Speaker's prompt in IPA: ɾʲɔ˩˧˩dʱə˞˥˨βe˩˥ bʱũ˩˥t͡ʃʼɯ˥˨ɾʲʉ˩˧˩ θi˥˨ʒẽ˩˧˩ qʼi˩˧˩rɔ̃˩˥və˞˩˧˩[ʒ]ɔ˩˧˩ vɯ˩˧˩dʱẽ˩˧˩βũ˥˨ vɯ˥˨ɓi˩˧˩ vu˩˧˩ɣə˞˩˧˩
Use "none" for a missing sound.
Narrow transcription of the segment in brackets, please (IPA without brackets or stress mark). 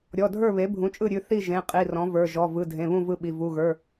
ʒ